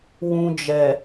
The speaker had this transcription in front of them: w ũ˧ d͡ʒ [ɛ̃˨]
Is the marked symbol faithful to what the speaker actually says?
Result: no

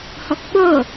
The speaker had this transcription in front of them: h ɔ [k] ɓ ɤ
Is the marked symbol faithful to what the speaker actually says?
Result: yes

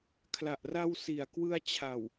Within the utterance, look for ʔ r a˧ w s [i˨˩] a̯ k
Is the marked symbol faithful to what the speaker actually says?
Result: yes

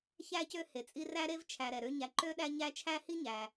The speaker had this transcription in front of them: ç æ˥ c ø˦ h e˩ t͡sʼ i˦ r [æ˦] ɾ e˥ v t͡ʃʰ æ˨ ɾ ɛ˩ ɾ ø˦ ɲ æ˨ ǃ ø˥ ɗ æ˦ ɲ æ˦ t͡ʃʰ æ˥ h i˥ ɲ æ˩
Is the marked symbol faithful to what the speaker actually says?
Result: no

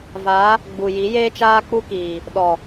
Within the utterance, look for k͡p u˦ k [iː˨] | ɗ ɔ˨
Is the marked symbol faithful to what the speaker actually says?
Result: yes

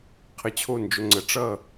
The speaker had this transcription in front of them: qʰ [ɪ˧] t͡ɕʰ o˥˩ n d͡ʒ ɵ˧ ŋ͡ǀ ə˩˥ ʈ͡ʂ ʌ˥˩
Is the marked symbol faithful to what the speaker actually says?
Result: no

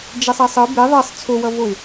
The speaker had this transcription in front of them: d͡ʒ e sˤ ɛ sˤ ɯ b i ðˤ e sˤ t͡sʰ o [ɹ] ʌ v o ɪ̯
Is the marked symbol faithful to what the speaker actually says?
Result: no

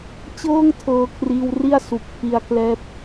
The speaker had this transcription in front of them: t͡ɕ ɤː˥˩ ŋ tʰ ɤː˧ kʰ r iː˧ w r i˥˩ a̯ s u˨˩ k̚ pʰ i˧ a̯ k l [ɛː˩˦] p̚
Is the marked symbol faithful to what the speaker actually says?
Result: no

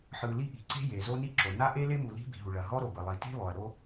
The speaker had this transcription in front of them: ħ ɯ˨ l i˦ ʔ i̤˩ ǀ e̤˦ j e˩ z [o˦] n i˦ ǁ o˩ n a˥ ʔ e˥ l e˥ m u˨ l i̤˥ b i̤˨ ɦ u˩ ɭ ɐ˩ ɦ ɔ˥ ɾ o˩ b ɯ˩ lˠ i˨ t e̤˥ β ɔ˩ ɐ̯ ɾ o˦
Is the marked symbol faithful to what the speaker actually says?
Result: yes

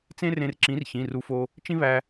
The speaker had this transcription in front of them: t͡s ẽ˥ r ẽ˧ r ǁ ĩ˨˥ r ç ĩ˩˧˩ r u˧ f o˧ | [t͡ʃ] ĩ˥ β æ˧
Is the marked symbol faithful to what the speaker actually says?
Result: yes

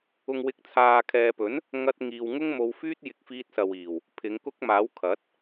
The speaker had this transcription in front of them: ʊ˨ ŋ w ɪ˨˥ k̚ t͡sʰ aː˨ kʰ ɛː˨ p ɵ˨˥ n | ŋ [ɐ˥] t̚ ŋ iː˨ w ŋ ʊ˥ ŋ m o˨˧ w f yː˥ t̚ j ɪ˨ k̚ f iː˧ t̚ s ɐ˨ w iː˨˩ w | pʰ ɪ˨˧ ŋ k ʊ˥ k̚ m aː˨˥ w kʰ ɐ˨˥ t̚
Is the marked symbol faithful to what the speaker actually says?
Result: no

